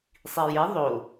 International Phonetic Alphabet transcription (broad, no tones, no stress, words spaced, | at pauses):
sˤije ðˤo